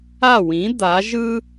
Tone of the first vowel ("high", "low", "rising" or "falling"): falling